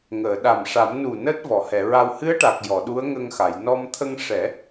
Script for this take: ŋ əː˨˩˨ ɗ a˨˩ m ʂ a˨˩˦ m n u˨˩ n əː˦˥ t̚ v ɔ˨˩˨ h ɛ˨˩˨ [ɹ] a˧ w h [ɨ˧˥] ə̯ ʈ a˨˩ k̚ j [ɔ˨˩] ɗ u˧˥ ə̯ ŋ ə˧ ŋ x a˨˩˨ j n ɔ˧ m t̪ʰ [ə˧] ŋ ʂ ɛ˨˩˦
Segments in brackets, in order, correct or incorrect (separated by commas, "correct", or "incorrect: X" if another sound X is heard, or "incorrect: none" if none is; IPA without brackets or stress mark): correct, correct, incorrect: ɔ˨˩˨, correct